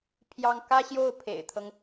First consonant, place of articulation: labial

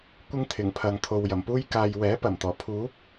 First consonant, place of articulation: velar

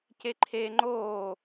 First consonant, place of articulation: palatal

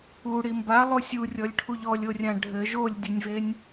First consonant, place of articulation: retroflex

